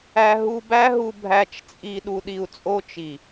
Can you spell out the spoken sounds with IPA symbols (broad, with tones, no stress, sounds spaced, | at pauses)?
æ˧ ɦ u˧ b æ˦ ɦ u˧ bʱ æ˧ t͡ʃ t͡sʼ i˧ ɗ u˧ ɗ i˧ u̯ t͡sʼ o˦ t͡ʃ i˨